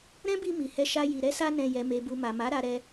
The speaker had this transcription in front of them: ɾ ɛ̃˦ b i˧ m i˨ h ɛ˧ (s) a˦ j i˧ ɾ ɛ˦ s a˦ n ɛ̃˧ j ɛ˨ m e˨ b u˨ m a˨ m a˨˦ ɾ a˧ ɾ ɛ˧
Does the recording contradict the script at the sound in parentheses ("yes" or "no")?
yes